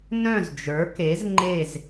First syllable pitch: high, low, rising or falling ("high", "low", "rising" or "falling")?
falling